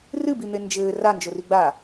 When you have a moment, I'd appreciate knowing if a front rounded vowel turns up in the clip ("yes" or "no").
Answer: no